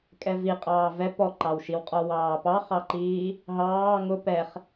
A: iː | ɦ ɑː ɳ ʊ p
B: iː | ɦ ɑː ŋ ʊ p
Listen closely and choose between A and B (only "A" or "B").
B